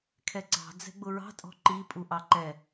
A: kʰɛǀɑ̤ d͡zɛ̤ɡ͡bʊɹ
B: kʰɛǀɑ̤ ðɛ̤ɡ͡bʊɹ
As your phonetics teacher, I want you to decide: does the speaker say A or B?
A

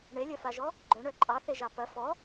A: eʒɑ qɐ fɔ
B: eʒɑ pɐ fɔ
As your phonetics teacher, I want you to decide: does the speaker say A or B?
B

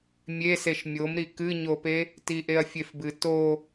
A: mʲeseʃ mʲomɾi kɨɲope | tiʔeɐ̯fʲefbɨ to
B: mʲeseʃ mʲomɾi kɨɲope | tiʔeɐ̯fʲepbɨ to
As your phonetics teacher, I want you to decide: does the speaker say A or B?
A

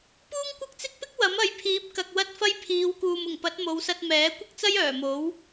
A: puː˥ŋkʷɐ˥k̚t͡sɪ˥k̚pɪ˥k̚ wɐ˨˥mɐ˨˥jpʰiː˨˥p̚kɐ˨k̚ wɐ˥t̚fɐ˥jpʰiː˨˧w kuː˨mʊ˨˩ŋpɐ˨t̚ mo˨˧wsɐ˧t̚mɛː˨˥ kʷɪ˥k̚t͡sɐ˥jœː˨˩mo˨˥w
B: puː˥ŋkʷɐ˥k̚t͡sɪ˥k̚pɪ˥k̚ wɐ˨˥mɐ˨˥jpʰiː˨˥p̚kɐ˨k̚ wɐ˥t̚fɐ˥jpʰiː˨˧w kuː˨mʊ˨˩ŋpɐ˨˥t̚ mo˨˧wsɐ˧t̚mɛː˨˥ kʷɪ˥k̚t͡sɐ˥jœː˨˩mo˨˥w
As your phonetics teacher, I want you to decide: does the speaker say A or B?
B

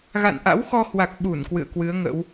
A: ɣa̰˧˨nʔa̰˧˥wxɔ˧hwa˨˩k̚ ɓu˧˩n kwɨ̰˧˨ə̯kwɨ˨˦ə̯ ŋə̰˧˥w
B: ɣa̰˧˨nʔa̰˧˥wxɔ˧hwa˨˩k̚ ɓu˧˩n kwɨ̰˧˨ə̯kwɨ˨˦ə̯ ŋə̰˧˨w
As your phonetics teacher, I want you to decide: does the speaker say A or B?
A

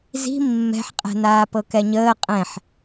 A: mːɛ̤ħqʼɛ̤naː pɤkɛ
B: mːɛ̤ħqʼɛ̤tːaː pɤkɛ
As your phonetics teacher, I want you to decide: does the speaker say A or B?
A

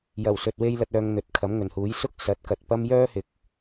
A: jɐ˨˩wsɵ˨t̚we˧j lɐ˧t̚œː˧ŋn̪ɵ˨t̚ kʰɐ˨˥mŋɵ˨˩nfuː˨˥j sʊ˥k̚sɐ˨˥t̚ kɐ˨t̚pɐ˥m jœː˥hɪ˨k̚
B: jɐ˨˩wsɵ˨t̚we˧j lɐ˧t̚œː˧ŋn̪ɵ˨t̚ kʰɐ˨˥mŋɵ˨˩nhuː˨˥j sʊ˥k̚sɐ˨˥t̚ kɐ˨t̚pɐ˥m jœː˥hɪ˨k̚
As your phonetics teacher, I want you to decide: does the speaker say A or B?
B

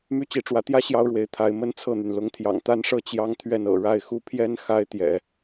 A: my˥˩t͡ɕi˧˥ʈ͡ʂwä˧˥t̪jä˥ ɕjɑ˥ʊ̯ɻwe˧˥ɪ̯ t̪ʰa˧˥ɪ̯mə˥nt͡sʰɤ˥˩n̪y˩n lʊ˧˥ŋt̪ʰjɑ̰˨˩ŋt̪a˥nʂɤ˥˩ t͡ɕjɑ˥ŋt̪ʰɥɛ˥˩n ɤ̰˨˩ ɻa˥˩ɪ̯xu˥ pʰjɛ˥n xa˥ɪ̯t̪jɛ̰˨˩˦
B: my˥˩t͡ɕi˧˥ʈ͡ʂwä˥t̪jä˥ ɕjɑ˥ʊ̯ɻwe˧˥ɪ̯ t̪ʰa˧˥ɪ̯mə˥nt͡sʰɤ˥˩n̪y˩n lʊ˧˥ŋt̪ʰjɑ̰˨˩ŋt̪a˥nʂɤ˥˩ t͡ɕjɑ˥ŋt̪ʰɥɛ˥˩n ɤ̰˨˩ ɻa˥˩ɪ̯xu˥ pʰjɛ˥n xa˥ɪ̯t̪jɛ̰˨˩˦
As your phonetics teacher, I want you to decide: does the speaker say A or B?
A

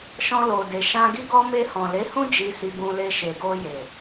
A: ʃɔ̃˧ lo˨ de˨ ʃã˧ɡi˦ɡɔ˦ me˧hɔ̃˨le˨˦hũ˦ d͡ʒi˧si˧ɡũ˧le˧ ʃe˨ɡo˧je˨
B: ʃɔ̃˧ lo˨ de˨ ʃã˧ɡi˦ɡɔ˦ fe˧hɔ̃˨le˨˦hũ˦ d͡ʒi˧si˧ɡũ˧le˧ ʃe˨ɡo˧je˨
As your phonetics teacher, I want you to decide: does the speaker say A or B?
A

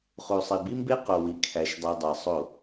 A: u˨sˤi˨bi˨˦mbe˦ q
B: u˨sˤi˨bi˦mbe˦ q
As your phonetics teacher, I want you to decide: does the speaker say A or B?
B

